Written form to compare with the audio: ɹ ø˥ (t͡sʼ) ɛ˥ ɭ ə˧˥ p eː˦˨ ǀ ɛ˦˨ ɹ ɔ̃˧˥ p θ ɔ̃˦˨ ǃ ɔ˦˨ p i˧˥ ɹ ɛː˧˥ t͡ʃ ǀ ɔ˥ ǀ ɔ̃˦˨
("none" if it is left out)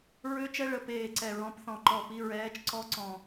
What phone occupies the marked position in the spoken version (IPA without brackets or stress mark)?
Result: t͡ʃ